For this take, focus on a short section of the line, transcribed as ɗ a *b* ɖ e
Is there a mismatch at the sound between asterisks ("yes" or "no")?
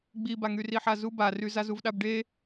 no